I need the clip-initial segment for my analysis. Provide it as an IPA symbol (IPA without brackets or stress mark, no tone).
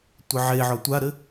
tʷ